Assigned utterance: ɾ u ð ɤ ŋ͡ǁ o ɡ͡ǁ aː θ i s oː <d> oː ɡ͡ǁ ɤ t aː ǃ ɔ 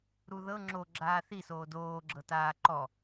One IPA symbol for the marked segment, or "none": d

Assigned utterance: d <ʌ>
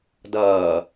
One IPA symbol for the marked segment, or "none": ʌː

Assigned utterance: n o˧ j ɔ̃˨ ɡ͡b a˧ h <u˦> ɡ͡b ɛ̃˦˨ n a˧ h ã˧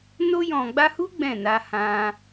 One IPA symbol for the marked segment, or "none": u˦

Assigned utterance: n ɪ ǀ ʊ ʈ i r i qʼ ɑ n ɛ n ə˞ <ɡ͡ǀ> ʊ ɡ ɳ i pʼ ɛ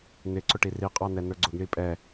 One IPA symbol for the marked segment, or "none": ɡ͡ǀ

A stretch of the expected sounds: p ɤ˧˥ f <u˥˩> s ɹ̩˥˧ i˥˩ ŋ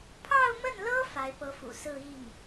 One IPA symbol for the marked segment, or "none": ṵ˨˩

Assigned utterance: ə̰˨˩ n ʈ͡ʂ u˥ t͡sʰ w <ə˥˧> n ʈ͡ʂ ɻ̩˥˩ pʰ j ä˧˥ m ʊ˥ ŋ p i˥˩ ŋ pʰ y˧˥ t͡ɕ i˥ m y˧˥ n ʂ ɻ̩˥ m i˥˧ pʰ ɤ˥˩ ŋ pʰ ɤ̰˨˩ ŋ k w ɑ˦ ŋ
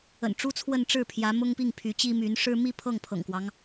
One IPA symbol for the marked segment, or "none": ə˥˧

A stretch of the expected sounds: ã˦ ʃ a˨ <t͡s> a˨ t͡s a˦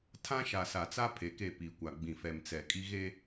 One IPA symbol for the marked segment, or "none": s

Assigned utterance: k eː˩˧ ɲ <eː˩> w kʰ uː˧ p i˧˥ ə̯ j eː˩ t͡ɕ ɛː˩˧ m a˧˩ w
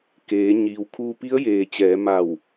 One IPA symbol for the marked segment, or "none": iː˩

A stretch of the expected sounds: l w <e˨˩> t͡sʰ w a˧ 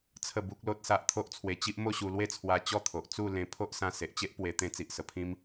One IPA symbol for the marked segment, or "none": e˦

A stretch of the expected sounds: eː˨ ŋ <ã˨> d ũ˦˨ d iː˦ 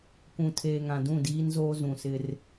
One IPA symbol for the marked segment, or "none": ã˨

